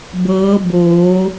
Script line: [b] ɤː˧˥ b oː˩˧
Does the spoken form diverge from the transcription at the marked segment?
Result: no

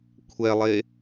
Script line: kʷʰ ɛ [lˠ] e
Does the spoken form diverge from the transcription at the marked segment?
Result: no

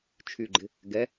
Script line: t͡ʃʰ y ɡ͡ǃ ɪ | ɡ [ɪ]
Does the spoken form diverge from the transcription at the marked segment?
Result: yes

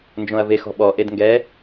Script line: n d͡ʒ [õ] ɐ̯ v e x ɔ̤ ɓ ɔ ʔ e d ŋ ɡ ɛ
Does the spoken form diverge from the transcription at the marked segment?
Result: no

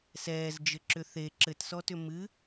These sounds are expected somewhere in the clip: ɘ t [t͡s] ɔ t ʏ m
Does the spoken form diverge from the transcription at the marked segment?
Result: yes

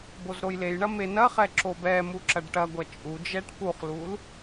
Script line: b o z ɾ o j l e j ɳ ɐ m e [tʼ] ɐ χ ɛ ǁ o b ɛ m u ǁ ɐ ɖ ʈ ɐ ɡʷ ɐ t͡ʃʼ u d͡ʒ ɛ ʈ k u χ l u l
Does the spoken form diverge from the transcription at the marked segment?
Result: yes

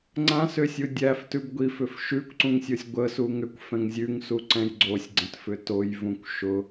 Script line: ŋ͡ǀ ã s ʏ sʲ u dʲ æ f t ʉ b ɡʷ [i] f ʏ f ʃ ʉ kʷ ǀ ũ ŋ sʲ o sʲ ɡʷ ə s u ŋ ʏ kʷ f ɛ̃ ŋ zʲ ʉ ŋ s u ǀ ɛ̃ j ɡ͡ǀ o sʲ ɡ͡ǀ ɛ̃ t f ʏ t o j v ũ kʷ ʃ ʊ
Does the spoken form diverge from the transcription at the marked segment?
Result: no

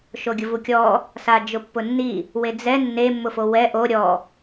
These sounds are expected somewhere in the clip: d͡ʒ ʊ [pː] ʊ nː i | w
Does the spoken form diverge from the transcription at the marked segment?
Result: no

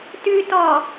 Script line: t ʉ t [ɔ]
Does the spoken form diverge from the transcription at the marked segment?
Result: no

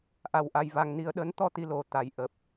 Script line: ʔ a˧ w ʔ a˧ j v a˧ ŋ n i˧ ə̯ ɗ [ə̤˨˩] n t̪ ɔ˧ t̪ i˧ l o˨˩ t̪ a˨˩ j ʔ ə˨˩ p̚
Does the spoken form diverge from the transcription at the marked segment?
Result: yes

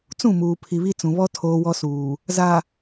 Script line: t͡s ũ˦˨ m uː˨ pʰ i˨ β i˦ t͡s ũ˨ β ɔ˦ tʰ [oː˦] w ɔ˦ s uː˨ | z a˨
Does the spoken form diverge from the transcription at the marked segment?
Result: no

